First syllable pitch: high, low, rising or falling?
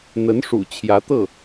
rising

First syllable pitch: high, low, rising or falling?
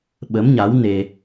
rising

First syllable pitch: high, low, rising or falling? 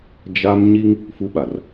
high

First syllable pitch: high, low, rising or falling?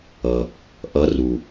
low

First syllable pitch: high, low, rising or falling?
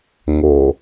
low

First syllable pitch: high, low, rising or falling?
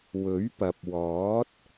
rising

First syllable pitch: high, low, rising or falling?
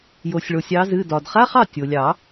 low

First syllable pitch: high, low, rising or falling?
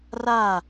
falling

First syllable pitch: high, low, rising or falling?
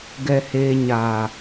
low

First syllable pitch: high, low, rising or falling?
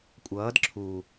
rising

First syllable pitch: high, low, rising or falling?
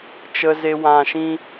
low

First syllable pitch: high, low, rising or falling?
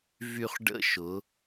low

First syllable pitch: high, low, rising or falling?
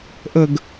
low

